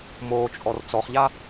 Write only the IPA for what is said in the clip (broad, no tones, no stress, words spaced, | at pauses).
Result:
moːt͡ʃʼɔr t͡sɔχʎa